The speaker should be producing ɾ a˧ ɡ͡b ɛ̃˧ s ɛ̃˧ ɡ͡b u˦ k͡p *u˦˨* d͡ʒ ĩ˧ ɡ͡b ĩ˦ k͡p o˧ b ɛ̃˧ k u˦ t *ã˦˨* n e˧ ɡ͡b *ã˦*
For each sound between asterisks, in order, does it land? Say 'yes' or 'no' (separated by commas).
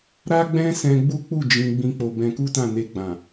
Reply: yes, yes, no